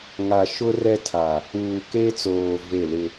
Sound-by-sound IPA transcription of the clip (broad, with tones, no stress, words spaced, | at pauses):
ŋa˨ʃʊ˦ rɛ˦tʰa˨ | uː˨ke˦t͡soː˨ ve˦˨lɪ˦